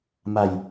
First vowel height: low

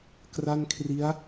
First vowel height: low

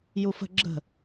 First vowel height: high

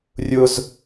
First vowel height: high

